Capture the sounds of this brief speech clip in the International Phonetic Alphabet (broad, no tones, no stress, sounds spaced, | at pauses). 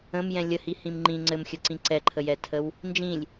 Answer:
ə̃ m j ɛ̃ lʲ ə h i h ĩ m ŋ͡ǃ ĩ ŋ͡ǀ ɘ m xʲ ə ǀ ĩ ǀ ɛ ǃʰ ə j ɛ tʰ ə w | n d͡ʒ ĩ lʲ